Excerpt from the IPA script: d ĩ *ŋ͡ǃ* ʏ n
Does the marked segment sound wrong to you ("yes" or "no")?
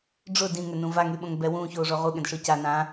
yes